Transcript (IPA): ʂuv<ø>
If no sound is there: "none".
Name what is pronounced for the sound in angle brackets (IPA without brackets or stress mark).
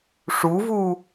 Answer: u